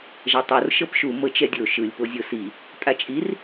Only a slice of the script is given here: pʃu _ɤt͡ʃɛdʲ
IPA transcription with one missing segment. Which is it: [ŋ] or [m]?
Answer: m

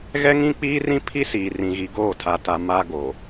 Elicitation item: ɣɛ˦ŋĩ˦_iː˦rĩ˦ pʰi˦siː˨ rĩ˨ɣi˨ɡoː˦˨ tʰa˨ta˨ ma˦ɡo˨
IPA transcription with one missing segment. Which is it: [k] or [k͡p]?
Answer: k͡p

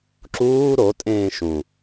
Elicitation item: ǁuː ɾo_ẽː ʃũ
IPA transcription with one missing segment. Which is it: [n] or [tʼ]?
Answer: tʼ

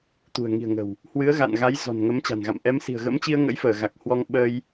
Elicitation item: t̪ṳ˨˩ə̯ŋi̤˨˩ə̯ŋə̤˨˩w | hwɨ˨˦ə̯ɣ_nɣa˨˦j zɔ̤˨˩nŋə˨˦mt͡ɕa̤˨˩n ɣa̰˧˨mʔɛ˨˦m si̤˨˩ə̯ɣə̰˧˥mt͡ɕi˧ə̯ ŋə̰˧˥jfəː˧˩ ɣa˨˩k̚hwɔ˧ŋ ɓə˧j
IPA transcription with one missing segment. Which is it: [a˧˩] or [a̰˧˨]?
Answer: a̰˧˨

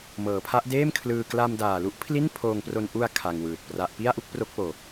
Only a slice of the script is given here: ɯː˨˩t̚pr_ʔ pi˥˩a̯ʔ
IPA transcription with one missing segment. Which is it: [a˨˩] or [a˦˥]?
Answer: a˦˥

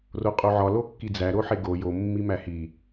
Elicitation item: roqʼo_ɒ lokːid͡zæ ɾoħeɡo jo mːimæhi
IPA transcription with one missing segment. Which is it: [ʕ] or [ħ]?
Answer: ʕ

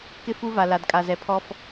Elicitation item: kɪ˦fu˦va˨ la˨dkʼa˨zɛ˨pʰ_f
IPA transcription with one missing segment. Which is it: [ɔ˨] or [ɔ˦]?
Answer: ɔ˦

